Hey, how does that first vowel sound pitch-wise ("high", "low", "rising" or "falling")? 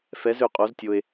rising